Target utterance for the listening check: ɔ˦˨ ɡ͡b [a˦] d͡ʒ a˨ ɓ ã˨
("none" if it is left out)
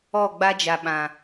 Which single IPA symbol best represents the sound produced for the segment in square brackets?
a˦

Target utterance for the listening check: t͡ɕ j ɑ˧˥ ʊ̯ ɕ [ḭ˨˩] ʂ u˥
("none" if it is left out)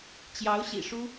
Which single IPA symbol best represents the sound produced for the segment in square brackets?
ḭ˨˩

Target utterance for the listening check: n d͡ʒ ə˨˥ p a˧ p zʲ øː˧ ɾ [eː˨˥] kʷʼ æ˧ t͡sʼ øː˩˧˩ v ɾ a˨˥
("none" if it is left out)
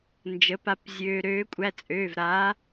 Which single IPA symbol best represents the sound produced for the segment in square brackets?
øː˨˥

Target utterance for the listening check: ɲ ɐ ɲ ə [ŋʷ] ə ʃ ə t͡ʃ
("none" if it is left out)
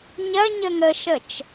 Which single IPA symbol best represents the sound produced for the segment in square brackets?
ŋ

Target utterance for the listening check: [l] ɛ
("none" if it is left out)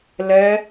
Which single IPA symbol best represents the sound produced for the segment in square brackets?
l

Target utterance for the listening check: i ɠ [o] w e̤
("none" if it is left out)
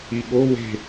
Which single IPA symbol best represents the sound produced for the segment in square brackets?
o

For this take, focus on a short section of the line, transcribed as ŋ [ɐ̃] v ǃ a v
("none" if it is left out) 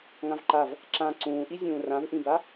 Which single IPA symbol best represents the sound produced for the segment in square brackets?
ã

